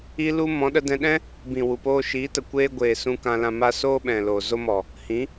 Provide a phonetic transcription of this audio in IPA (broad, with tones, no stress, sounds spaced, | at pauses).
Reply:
i˦ l u˦ m ɔ̃˨˦ ɗ ə˧ d ɛ̃˧ ɗ ɛ̃˦ | b ĩ˨ w u˨ p oː˧ ʃ iː˨˦ t ə˨ kʷ eː˧ ɡʷ eː˨ s ũ˧ k ã˧ l ã˧ m a˧ s oː˦ ɓ ɛ̃˨ l oː˨ z o˦ m ɔ˨ | h ĩ˨˦